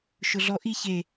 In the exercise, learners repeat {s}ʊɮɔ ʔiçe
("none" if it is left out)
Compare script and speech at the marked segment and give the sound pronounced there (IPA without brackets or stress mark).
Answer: ʃ